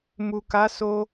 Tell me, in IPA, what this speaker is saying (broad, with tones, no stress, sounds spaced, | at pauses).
m u˨ k a˨˦ s o˧